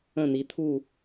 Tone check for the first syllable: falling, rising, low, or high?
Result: falling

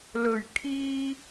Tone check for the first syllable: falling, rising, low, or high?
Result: low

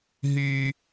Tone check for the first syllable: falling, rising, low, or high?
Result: high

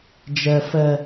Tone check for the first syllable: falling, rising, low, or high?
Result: low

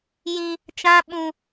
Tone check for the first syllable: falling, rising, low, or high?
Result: high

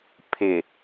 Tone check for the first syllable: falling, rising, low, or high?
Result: low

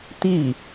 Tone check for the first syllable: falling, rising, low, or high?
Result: falling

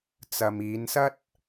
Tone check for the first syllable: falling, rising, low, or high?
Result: low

